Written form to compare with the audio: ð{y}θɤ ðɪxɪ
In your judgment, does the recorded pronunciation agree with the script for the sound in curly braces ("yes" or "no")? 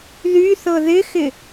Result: yes